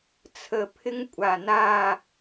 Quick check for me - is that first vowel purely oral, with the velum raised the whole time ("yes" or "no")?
yes